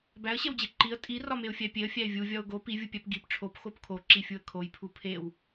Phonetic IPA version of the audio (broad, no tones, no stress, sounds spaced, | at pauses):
b æ ə̯ ɕ e w d͡ʑ e ǃ i ə̯ tʼ i r ɒ m e ʊ̯ fʲ æ pʲ e ə̯ fʲ æ ɪ̯ vʲ u vʲ ɒ ʊ̯ ɡ o p i vʲ u pʲ æ p ɡ i p ʈ͡ʂʰ o p x o p kʰ o ǁ i fʲ u ə̯ kʰ o j pʰ u pʰ e w